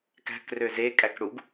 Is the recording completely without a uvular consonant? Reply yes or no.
yes